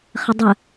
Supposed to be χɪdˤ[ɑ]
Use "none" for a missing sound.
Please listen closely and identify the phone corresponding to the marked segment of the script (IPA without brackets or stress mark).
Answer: ə